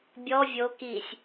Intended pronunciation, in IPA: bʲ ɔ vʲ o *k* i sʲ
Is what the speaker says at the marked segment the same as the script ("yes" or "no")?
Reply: yes